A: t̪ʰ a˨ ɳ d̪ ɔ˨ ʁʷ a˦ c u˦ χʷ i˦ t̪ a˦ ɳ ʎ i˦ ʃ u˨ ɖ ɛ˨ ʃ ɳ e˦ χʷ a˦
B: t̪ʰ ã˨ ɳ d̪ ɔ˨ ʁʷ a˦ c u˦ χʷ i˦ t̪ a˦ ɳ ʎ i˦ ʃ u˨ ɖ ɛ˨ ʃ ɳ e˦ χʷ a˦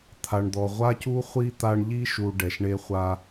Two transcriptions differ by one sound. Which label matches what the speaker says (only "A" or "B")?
A